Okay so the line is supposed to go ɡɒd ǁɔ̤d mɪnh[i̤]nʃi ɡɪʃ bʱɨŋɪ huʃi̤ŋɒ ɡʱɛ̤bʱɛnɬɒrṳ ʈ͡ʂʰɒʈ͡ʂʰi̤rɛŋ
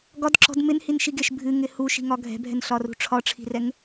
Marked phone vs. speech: incorrect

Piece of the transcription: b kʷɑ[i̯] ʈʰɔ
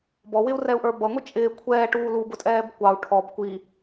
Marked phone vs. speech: incorrect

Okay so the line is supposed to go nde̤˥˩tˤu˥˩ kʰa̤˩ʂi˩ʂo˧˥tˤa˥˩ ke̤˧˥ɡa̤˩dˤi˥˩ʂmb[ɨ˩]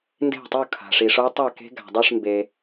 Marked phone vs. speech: incorrect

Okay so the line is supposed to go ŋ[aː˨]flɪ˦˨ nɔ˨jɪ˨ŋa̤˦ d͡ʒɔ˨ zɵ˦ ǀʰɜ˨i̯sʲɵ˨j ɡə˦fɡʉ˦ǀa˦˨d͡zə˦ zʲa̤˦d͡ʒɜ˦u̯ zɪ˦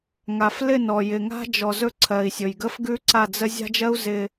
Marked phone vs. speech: incorrect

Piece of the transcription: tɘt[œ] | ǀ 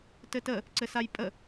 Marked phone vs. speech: incorrect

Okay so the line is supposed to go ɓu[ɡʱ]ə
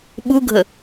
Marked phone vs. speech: correct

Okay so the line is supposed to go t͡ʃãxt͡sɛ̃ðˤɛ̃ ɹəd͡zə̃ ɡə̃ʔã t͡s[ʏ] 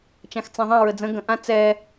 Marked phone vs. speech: incorrect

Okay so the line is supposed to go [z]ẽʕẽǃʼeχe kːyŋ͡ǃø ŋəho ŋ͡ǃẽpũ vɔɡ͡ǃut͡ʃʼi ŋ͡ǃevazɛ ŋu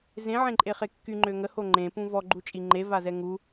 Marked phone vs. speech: correct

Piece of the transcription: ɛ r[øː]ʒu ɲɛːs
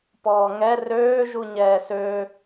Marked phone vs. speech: correct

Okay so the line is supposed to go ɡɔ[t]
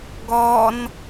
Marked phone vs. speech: incorrect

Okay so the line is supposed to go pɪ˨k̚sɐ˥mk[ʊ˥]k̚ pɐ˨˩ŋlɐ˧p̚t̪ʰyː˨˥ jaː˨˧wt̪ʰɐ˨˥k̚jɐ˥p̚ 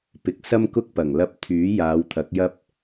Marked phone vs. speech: correct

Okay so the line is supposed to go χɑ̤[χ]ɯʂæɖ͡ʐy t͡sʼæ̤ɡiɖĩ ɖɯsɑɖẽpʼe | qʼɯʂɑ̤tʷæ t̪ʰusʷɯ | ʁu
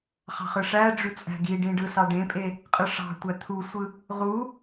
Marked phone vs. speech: correct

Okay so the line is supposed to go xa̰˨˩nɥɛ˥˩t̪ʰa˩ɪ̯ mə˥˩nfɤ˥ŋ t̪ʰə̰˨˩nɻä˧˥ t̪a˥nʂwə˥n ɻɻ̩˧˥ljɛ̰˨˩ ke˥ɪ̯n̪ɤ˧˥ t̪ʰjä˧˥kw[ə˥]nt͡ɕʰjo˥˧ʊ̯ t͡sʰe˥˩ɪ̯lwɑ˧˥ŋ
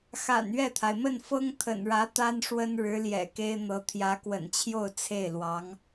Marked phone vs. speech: incorrect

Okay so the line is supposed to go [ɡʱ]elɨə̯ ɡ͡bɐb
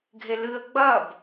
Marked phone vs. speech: correct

